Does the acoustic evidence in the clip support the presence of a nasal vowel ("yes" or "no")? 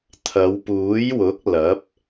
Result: no